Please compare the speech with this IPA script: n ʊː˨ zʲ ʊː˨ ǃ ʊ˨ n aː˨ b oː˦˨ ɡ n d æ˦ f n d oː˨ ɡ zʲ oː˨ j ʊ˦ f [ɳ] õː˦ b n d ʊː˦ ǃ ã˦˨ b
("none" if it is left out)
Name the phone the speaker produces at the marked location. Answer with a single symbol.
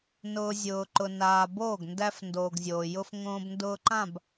ŋ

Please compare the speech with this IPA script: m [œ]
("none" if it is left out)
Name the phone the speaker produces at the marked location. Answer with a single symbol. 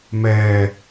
ɛ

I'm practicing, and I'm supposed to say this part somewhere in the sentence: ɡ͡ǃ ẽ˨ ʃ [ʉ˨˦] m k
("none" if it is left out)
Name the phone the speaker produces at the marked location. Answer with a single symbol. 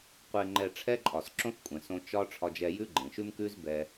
ʉ˦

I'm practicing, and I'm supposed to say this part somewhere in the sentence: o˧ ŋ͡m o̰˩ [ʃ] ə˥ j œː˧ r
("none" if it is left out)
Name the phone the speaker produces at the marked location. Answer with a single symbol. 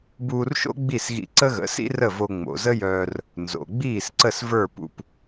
z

